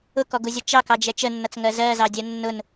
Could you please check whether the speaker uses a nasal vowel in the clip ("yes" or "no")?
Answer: no